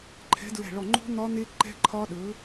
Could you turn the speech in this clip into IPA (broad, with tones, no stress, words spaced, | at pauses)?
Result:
ǃʰɛ̤˨˥dɹɛ̤˧˩ɭɔ˧˩ŋ͡ǃo̤˦˥ n̪ɒ˦˥n̪e˦˥ ǃɛ̤˦˥ǃʰɒ˦˥ ɗɵ˨˥